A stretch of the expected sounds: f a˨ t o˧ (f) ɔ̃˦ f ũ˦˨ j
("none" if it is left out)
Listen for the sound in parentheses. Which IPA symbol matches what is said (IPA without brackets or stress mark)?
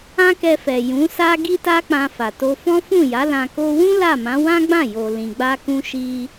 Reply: f